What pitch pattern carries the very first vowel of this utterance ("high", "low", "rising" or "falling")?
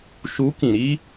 rising